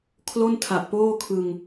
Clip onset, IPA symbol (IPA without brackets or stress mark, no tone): kʰ